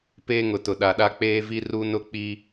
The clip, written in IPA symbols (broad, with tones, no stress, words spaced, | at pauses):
peː˦ŋʊ˨tʊ˨ ɗa˨ɗa˦ k͡peː˦vi˦ ru˦nʊ˦k͡pi˦